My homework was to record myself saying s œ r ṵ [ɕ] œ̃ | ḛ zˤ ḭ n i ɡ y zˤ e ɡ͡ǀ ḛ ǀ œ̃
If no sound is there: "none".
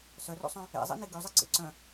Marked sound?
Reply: sˤ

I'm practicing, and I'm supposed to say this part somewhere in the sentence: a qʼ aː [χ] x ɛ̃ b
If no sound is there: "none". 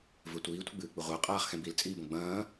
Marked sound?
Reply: χ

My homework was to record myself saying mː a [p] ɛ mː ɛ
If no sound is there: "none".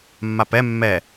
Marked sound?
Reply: p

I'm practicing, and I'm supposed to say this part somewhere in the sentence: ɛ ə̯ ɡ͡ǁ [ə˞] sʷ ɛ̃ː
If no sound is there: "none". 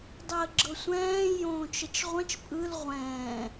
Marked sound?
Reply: ɤ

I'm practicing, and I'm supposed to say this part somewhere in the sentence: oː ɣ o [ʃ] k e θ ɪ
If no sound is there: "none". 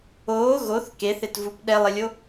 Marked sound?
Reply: θ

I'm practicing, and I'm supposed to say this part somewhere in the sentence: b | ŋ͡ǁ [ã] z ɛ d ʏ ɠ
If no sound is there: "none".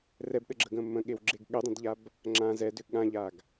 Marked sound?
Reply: ã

